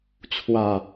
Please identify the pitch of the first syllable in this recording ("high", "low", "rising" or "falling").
low